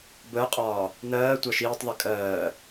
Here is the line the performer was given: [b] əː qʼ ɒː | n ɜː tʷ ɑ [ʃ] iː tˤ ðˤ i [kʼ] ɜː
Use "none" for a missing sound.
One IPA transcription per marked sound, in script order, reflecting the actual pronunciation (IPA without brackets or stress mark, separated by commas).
b, ʃ, kʼ